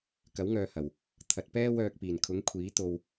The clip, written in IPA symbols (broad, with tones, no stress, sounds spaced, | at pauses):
k ɐ˨˥ w ŋ œː˨ h ɐ˨˩ w | t̪ʰ ɐ˨ t̚ p ɛː˥ w œː˧ k̚ p iː˨˩ n kʰ ʊ˨˥ ŋ kʷʰ iː˨˥ t̪ o˧ w